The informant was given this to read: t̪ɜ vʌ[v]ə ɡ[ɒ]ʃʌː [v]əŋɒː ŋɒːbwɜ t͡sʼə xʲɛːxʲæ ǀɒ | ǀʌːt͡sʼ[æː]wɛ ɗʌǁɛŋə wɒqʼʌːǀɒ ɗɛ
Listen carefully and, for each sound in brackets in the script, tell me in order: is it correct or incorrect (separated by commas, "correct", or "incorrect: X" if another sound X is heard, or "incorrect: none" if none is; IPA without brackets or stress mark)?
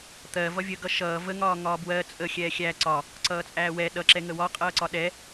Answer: incorrect: vʲ, incorrect: ʌ, correct, correct